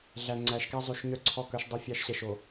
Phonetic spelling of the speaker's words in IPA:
ɮæ˨ ŋ͡ǀæ˨˦ʃkæ˦ zˤʉ˨ʃ ɲœ˦ǀʰɔ˦˨kœ˦ʃ dˤø˦fʲɑ˦ʃɕɛ˨ʃ o˨

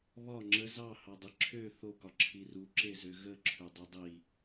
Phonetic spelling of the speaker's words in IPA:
βɒ ŋ͡ǁə zɑhɑdˤi ǁʰø θokɒǁʰi ruǁezø ɣəǁʰødˤu dˤi

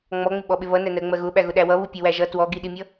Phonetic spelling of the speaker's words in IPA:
ŋ͡mɔŋ͡mɪɓɔɓɪ βʌnænɜ ŋ͡mɜɣʊɓæ ɣʊɗæwʌβu pʲʌwæʒʌ twɔɡiɗimʲʌ

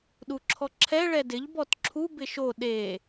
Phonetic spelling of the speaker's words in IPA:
ɗuǁʰɔǁʰɛ ɭɛdɪʎ bɔtǁʰu bɪʃo ɗe

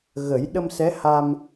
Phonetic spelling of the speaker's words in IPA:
ɣə˨˩˦jɗə˧msɛ˧˥ ha˧m

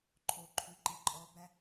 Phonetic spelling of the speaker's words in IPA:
ǃʰoǃʰy ǃiǃʼɔbæ

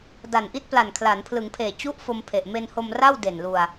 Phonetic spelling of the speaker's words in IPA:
da˨˩nʔi˥˩t̚pla˨˩n kʰla˩˦npʰlɯ˩˦ŋpʰeː˨˩ t͡ɕu˥˩ʔfo˧m pʰe˨˩ʔme˧nho˧m ra˥˩w de˨˩nlu˧a̯

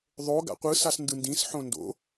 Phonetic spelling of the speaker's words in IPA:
ðˤo ɡa̰qʷɯ sasndɯndĩs ħõndo̰

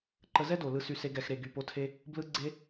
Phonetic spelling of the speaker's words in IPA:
ǃə˧zɛ˦do˨ lɯ˧sy˧se˧ ɡɛ˨xɾe˨ ɡy˨po˨˦tʰe˧ | blɯ˦ɡ͡ǀe˦

